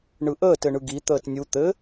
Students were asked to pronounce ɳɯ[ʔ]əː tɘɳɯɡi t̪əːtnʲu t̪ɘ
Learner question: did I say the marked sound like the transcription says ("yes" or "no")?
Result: yes